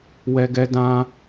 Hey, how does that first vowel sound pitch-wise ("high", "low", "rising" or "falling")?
high